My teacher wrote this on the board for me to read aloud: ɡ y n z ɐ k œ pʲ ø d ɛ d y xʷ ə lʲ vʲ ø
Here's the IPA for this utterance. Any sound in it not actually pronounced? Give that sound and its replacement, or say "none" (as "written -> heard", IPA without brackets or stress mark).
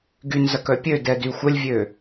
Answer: none